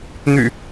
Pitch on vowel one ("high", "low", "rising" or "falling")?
low